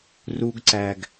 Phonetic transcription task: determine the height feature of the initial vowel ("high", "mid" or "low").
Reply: high